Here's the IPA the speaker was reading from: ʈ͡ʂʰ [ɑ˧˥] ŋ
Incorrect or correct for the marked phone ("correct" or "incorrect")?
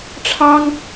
incorrect